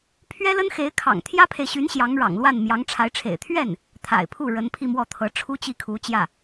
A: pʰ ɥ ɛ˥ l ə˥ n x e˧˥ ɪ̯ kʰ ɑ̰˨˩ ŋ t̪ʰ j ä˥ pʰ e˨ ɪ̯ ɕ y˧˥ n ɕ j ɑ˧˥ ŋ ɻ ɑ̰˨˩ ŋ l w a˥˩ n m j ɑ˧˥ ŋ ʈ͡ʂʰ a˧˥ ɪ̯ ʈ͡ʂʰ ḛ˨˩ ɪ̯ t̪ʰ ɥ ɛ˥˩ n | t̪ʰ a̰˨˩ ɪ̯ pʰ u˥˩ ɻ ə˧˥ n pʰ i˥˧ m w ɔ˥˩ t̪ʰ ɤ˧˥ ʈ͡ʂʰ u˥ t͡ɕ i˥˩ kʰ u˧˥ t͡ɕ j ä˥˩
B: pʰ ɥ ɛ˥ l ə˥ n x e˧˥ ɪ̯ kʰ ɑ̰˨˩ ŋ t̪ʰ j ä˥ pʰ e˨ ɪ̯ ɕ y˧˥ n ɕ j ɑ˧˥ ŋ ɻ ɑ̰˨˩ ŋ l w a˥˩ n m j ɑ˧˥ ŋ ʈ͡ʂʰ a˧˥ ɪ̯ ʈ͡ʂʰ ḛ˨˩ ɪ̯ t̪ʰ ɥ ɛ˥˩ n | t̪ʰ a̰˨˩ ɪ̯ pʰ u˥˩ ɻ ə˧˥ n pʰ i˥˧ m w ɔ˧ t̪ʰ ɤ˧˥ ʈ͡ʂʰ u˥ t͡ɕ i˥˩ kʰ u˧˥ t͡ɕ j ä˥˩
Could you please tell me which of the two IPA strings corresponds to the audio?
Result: A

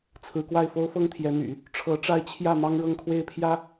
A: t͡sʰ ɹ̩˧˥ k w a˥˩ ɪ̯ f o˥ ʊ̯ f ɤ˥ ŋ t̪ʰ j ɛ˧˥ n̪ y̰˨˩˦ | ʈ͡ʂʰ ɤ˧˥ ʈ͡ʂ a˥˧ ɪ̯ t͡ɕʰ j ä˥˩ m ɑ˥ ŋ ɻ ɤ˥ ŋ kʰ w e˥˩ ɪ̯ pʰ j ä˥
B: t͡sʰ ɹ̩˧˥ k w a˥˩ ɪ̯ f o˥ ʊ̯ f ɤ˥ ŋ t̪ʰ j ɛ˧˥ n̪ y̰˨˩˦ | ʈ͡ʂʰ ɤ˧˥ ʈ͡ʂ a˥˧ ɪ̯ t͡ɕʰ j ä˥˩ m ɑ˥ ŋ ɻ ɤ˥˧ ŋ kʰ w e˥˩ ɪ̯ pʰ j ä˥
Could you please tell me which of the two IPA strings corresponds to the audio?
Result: B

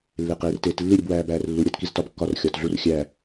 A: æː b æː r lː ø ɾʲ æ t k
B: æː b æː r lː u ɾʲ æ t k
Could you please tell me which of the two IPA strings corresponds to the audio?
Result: B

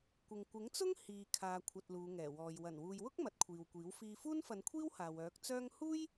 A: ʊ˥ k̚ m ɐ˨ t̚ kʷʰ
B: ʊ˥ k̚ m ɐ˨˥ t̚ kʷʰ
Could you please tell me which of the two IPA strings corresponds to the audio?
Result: B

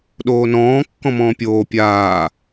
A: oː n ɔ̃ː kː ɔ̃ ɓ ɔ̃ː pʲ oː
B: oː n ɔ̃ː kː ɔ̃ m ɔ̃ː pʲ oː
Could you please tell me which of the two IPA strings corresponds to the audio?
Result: B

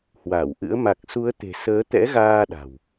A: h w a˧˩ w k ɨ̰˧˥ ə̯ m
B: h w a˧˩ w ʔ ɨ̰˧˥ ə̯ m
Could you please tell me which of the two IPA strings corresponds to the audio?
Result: B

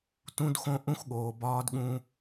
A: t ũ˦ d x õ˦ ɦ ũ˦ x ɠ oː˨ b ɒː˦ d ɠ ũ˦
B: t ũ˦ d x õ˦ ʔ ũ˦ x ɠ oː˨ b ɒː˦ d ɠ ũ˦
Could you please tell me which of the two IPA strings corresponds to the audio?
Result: B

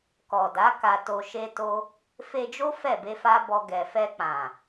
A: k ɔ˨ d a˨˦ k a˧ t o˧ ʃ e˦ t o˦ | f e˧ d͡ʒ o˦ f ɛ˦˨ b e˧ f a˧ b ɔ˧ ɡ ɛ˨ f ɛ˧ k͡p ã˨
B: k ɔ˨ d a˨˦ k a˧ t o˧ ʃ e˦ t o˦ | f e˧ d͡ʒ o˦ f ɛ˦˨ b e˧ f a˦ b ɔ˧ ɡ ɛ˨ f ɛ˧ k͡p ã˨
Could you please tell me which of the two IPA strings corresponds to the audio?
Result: B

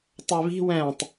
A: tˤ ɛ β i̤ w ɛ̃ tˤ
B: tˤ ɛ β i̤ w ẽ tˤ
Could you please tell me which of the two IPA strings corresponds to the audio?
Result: A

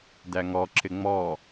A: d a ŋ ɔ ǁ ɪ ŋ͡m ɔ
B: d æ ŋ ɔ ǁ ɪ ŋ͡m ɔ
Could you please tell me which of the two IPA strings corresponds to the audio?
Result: B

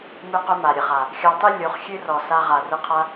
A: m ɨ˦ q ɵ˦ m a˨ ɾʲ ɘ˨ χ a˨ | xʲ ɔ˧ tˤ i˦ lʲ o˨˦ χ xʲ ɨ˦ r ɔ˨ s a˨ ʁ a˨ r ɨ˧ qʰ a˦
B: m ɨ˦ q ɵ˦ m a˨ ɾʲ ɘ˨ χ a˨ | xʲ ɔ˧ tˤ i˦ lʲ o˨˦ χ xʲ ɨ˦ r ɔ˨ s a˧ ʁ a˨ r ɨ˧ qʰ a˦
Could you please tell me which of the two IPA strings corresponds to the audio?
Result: B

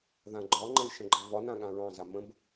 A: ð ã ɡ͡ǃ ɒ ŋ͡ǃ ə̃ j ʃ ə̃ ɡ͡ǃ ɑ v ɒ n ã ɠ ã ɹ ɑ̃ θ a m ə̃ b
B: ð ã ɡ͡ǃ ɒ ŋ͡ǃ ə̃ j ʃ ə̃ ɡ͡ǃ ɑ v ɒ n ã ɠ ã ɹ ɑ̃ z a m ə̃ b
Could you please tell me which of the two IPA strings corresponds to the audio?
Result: B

